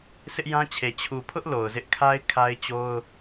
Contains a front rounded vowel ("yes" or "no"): no